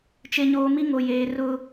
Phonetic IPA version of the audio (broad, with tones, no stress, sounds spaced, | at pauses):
t͡ʃ e˨ ɲ oː˨ m i˦ ŋ o˨ j eː˨ r ʊ˦